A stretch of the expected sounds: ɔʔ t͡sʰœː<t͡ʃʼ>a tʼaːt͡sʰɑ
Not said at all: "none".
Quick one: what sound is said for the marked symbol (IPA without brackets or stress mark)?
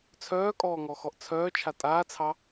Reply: t͡ʃʰ